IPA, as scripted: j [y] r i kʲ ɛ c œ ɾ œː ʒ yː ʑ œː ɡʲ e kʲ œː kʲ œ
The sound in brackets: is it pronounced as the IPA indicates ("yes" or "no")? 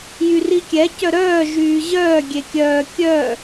yes